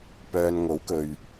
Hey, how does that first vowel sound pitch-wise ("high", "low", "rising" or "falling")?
low